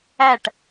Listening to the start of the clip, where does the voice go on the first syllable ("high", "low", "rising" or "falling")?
falling